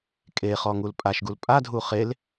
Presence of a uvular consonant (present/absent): present